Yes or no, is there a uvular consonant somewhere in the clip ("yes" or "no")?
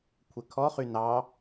yes